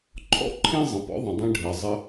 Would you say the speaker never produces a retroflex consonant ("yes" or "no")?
no